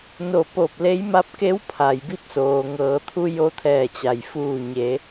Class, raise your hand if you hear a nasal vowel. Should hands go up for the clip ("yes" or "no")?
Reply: no